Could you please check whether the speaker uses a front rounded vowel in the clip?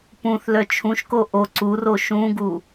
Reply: yes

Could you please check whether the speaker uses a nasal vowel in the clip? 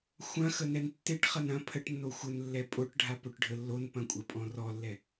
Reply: yes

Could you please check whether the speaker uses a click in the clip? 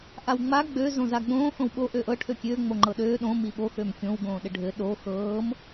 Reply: yes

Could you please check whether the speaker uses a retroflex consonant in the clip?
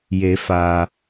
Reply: no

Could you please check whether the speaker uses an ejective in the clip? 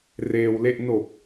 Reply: no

